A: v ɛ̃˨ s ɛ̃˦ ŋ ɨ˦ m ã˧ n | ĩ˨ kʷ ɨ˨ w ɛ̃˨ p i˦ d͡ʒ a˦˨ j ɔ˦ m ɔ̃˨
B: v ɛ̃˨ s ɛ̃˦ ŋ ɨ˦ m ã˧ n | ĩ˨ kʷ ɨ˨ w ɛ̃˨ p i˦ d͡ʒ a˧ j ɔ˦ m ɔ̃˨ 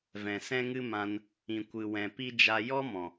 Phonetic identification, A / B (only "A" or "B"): B